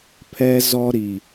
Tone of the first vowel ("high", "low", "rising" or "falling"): high